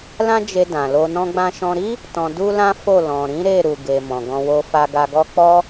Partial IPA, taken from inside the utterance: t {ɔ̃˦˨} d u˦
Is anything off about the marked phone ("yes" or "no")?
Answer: yes